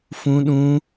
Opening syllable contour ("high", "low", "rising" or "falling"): high